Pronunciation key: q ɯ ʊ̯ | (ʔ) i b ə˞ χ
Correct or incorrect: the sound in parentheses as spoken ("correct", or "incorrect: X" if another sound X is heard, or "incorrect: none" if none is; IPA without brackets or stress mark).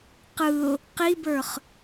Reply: incorrect: q